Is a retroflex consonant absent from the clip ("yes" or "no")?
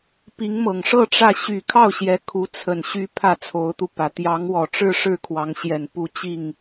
no